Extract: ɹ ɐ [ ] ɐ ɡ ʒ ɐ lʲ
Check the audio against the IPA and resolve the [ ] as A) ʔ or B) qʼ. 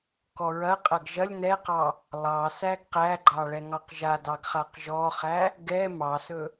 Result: B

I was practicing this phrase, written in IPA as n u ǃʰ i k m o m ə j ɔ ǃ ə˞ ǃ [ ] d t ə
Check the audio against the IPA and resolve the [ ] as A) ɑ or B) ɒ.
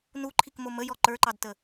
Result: A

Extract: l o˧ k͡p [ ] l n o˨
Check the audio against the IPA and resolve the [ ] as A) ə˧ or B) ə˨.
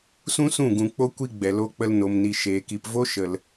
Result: A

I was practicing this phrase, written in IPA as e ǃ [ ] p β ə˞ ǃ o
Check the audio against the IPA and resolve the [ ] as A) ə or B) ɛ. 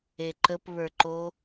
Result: A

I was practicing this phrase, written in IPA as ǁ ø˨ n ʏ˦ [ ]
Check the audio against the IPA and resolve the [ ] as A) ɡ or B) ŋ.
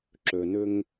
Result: B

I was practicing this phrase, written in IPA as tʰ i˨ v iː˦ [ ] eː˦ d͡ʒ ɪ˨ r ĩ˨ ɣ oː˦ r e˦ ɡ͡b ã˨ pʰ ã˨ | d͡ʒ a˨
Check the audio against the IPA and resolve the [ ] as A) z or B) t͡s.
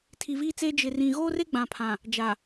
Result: B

